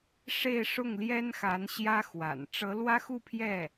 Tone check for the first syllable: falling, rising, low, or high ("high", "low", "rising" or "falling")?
falling